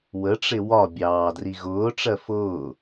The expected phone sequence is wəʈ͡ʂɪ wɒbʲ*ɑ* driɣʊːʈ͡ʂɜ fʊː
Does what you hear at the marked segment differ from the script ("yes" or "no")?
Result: yes